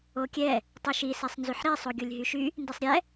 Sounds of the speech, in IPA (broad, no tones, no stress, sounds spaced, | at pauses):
o kʲ ɛ | tˤ y ʃ i s ɛ sˤ n z y ħ ɾ i sˤ o ɡʲ o lʲ ɦ y ʃ y | n d i sˤ ɾʲ ɛ